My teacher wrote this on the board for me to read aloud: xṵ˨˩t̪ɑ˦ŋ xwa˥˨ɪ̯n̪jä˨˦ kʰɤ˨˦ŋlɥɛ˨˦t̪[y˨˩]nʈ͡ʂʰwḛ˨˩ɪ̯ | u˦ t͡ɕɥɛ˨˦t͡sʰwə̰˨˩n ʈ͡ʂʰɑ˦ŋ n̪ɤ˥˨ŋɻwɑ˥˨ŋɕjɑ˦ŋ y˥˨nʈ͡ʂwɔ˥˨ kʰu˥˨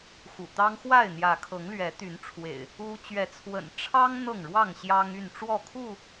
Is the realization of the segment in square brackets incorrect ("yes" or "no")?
yes